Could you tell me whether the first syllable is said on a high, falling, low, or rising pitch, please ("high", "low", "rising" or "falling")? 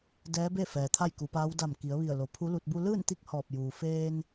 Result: rising